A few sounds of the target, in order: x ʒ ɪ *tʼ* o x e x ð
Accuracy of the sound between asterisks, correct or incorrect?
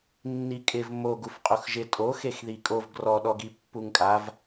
correct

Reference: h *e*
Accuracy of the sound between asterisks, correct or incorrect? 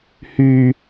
incorrect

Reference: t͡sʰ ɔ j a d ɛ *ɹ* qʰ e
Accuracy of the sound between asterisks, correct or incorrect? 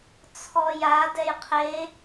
incorrect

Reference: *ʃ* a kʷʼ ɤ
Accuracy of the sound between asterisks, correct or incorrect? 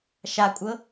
correct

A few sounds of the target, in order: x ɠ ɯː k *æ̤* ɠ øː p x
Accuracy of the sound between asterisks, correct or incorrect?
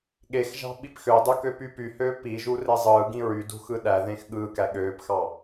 incorrect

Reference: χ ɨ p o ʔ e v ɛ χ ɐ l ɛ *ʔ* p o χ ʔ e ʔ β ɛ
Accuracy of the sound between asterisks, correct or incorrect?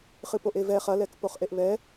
incorrect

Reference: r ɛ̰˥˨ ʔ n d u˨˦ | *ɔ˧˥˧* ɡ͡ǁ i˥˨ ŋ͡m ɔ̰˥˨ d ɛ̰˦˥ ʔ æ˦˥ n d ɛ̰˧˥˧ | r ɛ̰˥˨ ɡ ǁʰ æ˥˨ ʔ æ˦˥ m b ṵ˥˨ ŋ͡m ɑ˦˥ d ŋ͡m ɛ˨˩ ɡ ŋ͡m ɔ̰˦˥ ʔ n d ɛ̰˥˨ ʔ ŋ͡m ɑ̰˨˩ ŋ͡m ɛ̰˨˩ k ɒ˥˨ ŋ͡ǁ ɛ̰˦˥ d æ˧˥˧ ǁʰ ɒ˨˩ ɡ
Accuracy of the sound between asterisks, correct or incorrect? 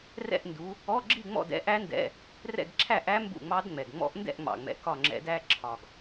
correct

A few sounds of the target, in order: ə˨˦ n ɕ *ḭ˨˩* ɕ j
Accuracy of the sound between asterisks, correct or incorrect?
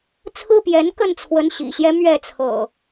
correct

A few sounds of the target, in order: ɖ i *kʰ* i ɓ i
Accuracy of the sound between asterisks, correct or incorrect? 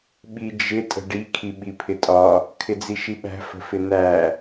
correct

